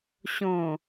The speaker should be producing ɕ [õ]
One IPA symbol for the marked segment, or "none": õ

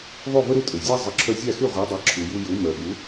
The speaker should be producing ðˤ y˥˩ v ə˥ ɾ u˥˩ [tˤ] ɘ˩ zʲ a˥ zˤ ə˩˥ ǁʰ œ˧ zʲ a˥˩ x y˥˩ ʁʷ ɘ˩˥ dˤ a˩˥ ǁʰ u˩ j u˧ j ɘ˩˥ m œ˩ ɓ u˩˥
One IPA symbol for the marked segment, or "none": tʼ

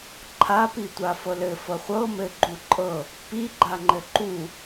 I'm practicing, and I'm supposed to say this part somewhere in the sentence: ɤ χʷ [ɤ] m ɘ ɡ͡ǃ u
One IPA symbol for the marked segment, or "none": ɤ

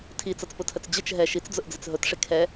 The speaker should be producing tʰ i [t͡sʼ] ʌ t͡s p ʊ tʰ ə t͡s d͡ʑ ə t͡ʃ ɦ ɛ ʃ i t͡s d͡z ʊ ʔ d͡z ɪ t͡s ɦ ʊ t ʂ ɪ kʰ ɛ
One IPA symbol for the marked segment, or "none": t͡s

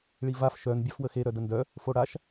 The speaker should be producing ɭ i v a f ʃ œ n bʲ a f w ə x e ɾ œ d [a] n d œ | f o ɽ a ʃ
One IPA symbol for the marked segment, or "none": ə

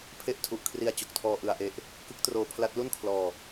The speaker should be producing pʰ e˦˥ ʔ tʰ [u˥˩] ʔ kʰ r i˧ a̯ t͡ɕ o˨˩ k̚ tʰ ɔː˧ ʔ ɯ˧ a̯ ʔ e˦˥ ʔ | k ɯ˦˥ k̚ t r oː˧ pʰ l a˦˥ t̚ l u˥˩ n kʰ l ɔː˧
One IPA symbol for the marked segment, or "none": u˨˩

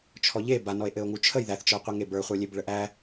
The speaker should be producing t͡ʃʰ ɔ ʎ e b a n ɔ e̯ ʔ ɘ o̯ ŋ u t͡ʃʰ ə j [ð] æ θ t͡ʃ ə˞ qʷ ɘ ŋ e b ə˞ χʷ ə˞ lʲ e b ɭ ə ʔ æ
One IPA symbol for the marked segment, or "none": ð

